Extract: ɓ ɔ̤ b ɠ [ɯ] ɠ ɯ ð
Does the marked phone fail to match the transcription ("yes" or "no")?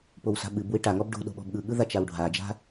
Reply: no